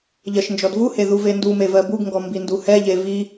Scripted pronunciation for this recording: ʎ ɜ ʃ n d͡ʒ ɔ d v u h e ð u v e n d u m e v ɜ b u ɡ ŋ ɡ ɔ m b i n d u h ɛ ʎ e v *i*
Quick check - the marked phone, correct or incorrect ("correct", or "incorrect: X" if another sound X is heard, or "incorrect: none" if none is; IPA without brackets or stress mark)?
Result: correct